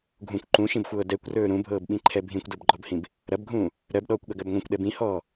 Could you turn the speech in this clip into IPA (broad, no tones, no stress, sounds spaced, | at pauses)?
ɡʱ ũ kʷ ǃ ũ ʃ ĩ b xʷ ɤː d ɛ kʷ r ɵː ɾ ũ bʱ ɤː b ɓ ĩ ǃʰ ɛ bʱ ĩ kʷ d ɤ b ɡ͡ǃ ɔ b h ĩ b | ɾ ɐ b ɡʱ ũː | ɾ ɜ b ɗ ɔː kʷ ɠ ɐ ɡ ɜ b ŋʷ ɐ̃ kʷ ɗ ɛ b ĩ h ɔː